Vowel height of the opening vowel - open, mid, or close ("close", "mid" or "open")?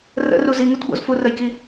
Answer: mid